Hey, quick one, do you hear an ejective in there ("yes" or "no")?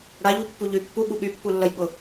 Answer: no